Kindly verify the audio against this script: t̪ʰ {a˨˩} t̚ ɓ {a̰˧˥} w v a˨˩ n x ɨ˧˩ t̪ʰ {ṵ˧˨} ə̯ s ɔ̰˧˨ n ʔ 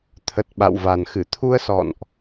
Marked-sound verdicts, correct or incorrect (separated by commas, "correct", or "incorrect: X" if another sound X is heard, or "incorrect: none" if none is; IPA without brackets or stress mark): incorrect: ə˨˩, incorrect: a̰˧˨, incorrect: u˧